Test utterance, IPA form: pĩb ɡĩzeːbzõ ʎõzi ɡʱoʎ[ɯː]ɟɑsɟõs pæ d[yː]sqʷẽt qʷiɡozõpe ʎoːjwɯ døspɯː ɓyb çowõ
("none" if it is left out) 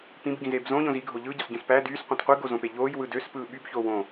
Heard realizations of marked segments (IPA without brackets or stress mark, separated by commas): ɯː, yː